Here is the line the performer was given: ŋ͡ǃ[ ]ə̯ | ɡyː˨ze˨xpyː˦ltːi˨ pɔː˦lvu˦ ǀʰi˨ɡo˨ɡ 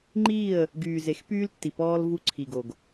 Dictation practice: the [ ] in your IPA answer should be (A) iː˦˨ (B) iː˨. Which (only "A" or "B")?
A